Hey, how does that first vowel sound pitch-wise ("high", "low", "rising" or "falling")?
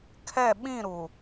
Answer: falling